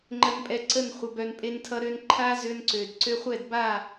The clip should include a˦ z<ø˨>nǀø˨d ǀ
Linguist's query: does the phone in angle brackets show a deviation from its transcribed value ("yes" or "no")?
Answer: yes